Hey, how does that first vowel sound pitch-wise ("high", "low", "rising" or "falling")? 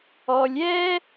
low